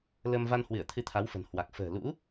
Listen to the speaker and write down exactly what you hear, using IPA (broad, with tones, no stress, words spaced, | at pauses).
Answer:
lə˧m va˧nhwɨ˧˩ə̯ t̪ʰɨ˧t̪ʰa˨˦wfə̤˨˩n hwa˨˩k̚ fə̤ː˨˩lṵ˧˥